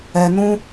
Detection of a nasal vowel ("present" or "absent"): present